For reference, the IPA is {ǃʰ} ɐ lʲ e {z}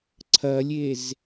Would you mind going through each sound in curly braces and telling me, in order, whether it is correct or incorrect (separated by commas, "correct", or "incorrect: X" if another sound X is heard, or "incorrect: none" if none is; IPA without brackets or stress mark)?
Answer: incorrect: ǀʰ, correct